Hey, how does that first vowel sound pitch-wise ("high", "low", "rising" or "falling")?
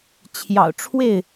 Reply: low